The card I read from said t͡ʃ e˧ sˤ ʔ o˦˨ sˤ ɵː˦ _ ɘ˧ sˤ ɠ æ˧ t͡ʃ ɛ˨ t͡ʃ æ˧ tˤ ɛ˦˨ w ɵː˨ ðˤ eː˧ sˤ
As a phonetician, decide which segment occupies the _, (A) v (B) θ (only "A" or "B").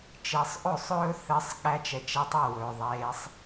B